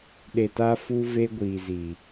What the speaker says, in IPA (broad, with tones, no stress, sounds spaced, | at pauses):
ɗ e˨ t a˧ f u˧ v e˧ ɡʷ iː˨ z i˨